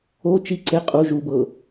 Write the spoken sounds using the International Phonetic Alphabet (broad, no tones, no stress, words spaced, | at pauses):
o t͡ʃi ǀe qʼu ʒubɤ